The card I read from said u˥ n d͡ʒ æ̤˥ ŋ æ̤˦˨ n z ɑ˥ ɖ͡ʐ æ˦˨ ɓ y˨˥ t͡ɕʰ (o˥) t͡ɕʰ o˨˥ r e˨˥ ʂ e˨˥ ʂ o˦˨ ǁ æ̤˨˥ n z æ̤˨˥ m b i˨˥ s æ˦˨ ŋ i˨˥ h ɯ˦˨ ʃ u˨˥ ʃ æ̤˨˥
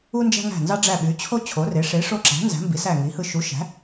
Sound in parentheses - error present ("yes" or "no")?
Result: no